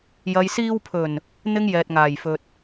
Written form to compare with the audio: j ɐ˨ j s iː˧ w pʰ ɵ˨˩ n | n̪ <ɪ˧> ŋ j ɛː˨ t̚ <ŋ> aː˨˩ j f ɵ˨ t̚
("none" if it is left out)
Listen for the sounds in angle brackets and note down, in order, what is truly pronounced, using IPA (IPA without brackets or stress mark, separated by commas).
ɪ˥, ŋ